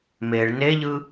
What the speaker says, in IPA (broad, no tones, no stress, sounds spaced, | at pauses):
m e ɭ n e ʎ ɯ